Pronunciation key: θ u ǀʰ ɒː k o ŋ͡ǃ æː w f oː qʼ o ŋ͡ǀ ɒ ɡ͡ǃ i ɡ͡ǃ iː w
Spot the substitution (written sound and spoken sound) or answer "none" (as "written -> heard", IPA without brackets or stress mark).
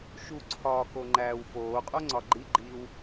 θ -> ʃ